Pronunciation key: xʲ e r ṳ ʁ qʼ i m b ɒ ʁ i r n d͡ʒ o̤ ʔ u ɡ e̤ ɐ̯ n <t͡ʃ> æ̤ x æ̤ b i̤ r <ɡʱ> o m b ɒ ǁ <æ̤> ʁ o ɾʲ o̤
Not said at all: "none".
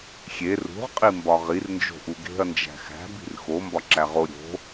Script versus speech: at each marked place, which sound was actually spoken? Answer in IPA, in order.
d͡ʒ, x, æ

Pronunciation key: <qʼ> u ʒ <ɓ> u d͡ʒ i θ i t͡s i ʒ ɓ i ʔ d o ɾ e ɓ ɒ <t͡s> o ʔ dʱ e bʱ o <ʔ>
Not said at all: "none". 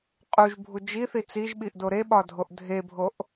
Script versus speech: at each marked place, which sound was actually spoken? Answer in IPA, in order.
qʼ, bʱ, dʱ, ʔ

